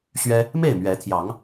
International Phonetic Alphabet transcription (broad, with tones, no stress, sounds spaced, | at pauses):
ɕ ɥ ɛ˦ | m e˥˨ ɪ̯ m ɥ ɛ˨˦ t̪ʰ j ɑ˨˦ ŋ